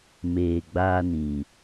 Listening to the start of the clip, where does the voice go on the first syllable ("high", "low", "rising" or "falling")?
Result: low